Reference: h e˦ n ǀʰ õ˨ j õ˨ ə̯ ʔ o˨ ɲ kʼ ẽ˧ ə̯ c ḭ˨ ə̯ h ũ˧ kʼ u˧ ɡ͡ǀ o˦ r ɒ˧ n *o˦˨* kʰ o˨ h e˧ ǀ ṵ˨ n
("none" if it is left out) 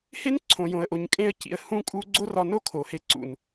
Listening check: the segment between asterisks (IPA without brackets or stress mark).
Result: o˦